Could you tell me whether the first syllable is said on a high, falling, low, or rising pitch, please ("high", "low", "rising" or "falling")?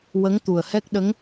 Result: rising